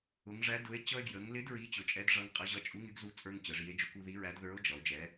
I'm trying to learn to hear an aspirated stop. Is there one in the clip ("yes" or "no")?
no